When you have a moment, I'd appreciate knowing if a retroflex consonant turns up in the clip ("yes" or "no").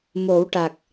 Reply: yes